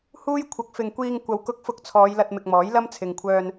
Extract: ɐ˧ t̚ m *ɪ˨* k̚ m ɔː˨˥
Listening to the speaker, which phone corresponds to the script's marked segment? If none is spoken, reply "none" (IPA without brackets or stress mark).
ɪ˨